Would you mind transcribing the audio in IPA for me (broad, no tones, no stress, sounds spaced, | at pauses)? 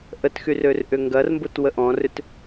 ʔ ə t x y r ø r ʔ ʏ ŋ ɡ ɐ r m b ʊ t w ə ʔ ɔ̃ r ʏ t